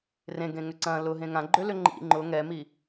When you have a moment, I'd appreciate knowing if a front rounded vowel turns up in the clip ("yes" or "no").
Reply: yes